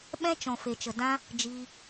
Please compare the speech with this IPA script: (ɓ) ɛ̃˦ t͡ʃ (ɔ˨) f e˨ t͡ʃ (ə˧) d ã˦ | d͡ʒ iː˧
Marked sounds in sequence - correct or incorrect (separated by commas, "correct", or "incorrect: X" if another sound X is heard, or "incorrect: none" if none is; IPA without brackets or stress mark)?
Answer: correct, incorrect: ɔ̃˨, incorrect: ə˨